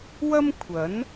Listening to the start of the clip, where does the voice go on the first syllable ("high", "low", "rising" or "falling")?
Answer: high